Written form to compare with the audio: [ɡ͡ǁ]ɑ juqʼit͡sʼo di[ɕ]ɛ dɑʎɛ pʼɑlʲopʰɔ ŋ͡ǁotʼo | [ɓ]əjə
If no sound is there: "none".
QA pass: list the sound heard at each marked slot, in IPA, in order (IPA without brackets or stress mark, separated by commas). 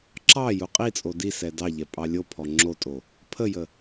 ǁ, s, pʰ